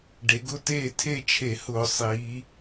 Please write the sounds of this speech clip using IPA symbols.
ɖ e˩˧ ɡ ʊ˥˧ t eː˥˧ tʰ e˥˧ t͡ʃʰ e˧˩˧ h ʊː˧˩˧ sˤ iː˩˧

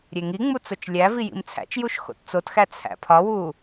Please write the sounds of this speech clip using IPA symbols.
ɾʲ e ŋ i ŋ͡m u t͡s o t͡ʃ lʲ æ v i j ḭ m t͡sʰ æ̰ t͡ʃ j u ʃ x o̰ t t͡s o t x æ t͡sʰ æ̰ pʰ ɒ w uː

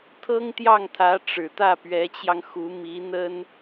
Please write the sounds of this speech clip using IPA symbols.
t̪ʰ ɤ˥ ŋ t̪ j ɑ˥˩ ŋ t̪ʰ ä˧˥ ʈ͡ʂ ɻ̩˨˩ t̪ ä˥˩ p ɥ ɛ˧˥ t͡ɕ j ɑ˧ ŋ x u˧˥ m i˧˥ n̪ ə˥ n

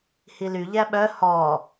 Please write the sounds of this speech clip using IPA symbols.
h i l y ʎ æ ɓ œ h ɔ

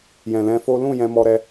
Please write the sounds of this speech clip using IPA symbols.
j ɛ̃˨ l ɛ̃˧ f o˦ l ũ˦˨ j ɛ̃˧ m ɔ˧ ɾ ɛ˧

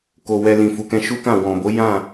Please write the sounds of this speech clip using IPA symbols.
k o˨ w ɛ˧ l ĩ˨ f u˨ k ɛ̃˧ ʃ u˦ k ã˦˨ w ɔ̃˨ b o˨˦ j ã˦˨

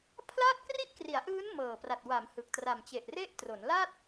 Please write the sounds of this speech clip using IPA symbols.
pʰ l aː˥˩ t̚ k r i˥˩ ʔ k r i˩˦ a̯ ʔ ɯː˦˥ n m ɤː˨˩ p r a˨˩ t̚ w a˩˦ m h ɯ˨˩ k̚ t r a˨˩ m t͡ɕ e˨˩ ʔ r e˥˩ ʔ t r o˩˦ n l a˥˩ t̚

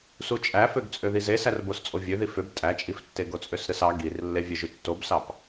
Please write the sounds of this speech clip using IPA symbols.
s u t͡ʃʼ æ f ø ɡ t͡sʼ ø ð i z e s æ r b o s t͡sʼ o vʲ ø ð i f ø b tʼ æ t͡ʃʼ i f tː e ɡ o t͡sʼ ø s ɾ ɯ s ɑ ɡ i r lː e vʲ e ʒ y tː o b s ɑ p

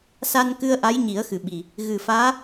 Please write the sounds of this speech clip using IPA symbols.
s a˧ n k ɨ˧ ə̯ ʔ a˧˥ j ɲ i˨˩˦ ə̯ x ɨ˨˩ ɓ i˨˩ | ɣ ɨ˨˩ f aː˧˥

